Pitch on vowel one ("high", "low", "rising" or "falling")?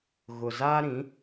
low